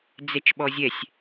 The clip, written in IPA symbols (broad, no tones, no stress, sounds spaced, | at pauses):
d͡z ɛ t͡ʃ ɓ ɔ zʲ ɛ sʲ